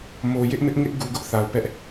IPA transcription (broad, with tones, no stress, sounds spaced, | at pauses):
m o˨ j ɪ˦ ʔ m ɪ˦ ʔ ŋ ɪ˦ ʔ ɡ u˨ ɡ ʊ˦ ʔ θ a˨ ʊ̯ p ɛ˦ ʔ